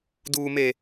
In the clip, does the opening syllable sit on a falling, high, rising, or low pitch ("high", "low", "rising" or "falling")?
high